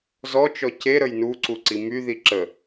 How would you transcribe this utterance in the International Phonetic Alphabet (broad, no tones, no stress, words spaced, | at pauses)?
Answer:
zɔt͡ʃɔ ceɾəj nuǀuǀi myði ǁə